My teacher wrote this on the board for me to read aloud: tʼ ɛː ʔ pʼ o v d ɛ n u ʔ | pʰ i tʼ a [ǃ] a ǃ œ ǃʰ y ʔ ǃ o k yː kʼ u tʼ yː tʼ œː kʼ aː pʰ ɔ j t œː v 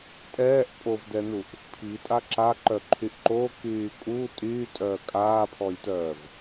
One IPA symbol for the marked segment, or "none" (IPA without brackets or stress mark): ǁ